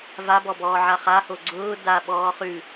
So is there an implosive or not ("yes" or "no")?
yes